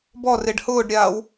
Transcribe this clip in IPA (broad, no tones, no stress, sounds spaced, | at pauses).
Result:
b ɔ r e ɖ h ʊː ɖ ɾʲ aː w